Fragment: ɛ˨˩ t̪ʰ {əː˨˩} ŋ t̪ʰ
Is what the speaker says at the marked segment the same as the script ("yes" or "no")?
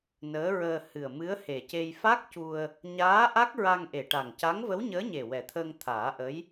no